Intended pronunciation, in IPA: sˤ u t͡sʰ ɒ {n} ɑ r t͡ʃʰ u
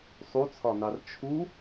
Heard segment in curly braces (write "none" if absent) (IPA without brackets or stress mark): n